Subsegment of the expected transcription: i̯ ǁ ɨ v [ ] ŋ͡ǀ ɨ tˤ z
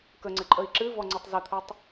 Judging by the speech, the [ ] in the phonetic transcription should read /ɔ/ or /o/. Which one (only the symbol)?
ɔ